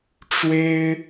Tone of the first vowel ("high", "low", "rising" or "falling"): high